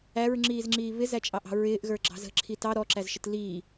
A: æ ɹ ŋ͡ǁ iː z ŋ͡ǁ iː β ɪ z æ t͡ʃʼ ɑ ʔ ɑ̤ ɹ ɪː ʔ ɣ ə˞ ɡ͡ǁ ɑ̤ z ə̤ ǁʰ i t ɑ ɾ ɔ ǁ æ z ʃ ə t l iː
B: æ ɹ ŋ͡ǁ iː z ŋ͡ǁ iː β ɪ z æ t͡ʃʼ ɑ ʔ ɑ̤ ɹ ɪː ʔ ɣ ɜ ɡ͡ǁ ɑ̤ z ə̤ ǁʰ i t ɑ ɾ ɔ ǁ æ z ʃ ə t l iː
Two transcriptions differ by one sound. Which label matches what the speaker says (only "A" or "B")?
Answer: A